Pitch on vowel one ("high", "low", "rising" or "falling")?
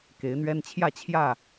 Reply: rising